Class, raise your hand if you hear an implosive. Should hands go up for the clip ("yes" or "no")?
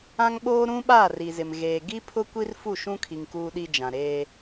yes